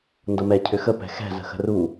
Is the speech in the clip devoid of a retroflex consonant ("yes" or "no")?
yes